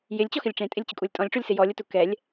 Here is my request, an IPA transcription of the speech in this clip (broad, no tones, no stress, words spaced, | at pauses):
jɪlʲt͡ɕɔxɪlʲ ʈ͡ʂẽtʼɪlʲt͡ɕʊkʼulʲ tʼɔ̃lʲʈ͡ʂulʲsɪ jɔlʲʊtu kɛlʲ